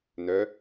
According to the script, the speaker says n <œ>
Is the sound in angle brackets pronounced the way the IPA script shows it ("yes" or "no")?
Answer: yes